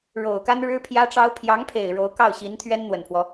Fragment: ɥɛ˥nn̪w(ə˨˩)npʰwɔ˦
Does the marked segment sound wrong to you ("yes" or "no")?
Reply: no